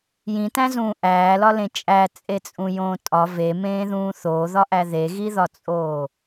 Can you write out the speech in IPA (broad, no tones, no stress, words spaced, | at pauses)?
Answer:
jĩtæ̃zũː ʔæːlɒlẽ t͡ʃʼæt͡sʼet͡sʼũjõː tʼɒ vemẽːðũː θoðɒʔæ ðeɣiðɒt͡sʼoː